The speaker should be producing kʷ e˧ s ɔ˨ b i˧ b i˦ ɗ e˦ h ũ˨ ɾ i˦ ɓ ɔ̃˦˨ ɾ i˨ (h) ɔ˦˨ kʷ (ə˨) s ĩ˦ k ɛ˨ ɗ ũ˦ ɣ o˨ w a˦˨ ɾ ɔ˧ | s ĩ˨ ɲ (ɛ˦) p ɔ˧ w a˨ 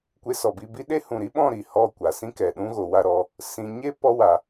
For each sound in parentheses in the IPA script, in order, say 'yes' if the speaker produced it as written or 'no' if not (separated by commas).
yes, no, no